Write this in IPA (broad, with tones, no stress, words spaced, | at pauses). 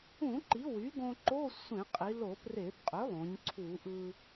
ũ˧˩˧ ǃi˩˥ wy˩˥ɡõ˧ ǃo˧˥˧ sʷẽ˧˩˧qʼi˩˧lo˧˩˧ pre˧˩˧bqʼø˩˥lˠõ˩˧ɲ ǀʰu˧˩˧ʔɯ˧